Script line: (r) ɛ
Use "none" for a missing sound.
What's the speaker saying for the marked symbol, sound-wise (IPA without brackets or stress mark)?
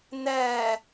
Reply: n̪